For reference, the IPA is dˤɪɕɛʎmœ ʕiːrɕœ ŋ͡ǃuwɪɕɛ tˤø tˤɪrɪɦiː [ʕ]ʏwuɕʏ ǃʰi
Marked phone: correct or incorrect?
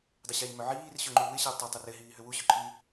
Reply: incorrect